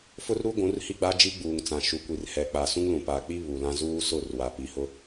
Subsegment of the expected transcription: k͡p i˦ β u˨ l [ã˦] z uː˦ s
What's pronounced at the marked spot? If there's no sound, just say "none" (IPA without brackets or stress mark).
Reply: ã˦